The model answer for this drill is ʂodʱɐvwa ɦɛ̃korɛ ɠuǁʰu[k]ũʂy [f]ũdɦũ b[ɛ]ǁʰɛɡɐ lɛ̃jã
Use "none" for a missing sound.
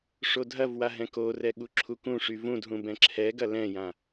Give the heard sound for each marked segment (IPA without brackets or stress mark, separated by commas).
k, v, ɛ̃